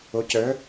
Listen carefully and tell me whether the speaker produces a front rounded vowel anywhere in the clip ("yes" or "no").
yes